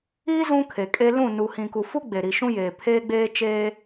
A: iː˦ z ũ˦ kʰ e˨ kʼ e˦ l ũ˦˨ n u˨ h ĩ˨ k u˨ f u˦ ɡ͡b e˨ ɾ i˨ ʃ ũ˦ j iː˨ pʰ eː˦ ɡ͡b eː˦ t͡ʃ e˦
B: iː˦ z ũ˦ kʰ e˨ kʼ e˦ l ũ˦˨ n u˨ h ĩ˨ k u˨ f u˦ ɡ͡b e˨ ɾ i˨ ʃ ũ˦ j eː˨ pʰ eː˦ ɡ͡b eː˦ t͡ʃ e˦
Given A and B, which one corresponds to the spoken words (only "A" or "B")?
B